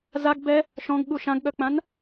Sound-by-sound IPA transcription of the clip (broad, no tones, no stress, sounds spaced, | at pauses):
z a ɡ b ɛ | ʃ ɔ̃ ɡ ɠ u ʃ ã ɡ ɠ œ k͡p ã n